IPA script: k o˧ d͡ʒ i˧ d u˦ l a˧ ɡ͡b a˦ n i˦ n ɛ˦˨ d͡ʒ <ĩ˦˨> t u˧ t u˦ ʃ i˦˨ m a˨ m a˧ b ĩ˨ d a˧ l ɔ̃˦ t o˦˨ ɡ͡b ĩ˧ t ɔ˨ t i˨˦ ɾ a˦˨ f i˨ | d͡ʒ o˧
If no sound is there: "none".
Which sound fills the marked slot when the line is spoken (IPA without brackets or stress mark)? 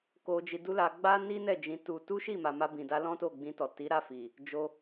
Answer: ĩ˧